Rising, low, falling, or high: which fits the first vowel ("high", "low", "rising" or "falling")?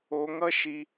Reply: high